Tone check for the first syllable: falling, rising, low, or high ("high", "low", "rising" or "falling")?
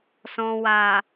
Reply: low